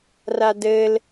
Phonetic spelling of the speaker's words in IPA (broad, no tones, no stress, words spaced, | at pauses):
radɘl